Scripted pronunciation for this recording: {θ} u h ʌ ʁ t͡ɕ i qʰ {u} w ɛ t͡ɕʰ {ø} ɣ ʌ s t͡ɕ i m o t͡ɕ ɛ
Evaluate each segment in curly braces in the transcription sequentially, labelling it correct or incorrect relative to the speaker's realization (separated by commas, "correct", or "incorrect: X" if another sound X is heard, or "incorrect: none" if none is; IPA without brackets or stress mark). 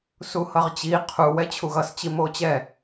incorrect: s, correct, incorrect: u